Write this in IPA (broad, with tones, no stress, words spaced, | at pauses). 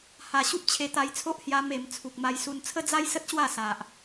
ha˨˩ ɕu˦p̚t͡ɕʰe˧t̪a˧jt͡sʰo˦ʔ hja˧ me˨˩m t͡sʰu˨k̚ma˧jsu˧n t͡sʰə˦d͡za˦jsə˦t̚ɕwa˥˧ sa˨ʔ